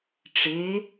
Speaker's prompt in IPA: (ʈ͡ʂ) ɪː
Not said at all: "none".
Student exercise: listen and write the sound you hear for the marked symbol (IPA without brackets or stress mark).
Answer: ʈ͡ʂ